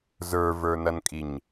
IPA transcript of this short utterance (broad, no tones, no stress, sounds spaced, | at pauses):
z ə˞ v ə˞ n ʌ n kʼ i ɲ